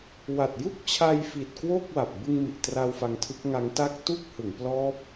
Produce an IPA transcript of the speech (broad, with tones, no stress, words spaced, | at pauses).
wa˨˩t̚ju˥˩k̚t͡ɕʰa˧jfi˨˩t̚ kwo˥˩k̚wa˨˩p̚ bɯ˧ŋmi˨˩ʔtra˧w fa˧ŋtʰɯ˦˥k̚ŋa˦˥ŋta˥˩k̚ tu˥˩k̚hɯ˩˦ŋplɔː˦˥p̚